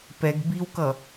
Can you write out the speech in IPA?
pɛɡ biwkʌ

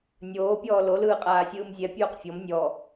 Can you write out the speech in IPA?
nʲoːpʲɔː lolɯː qʼaːsʲɯːmzʲɛpʲoːq fʲɔm nʲɔ

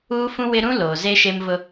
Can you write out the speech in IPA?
uː˦fũ˦wɪ˦ ɾũ˦loː˨ze˦ ʃe˦mvʊ˦

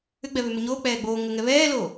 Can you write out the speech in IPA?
ʏɡ͡bɛ βʏmʏɲoː k͡pɛːɡ͡boː ŋə ŋɛβɛːloː

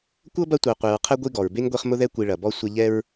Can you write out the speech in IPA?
kʷɤ˥bɐ˦tʷɤ˨ qʷe˨ɹqʰɛ˥ ɡʷi˦ɡɔ˩ɹbe˥ŋ ɡʷi˦χmʊ˥ðɛ˥ kʷi˨ɭɐ˩bɔ˦ sʷɐ˦ ʎɛ˦ɹ

